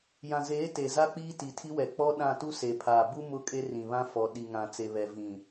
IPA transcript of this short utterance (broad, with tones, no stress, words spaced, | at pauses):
jã˨zeː˨˦ te˨za˦ k͡piː˦ti˨tʰi˦wɛ˨ k͡pɔ˦ɗã˦˨tu˦ se˨pʰaː˨ bu˦ mʊ˦kʼe˦rĩ˨βã˦ fɔ˨ ɗi˨ ŋã˨t͡se˨βɛ˨ vĩ˨